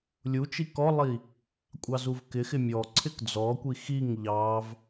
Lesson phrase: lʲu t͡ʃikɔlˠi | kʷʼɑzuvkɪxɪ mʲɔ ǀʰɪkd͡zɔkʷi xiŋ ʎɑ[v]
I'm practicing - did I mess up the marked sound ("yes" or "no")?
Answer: no